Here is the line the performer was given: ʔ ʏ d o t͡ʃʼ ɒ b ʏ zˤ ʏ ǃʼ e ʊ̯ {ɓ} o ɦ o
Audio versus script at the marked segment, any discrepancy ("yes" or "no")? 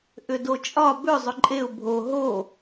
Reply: yes